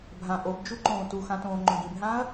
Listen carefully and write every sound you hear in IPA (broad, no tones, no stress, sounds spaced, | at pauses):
bʱ ã ʔ o b d͡ʒ u ǃ õː t u x ã t õː ŋ͡ǃ õ ɡ ĩ b ɦ ãː ɐ̯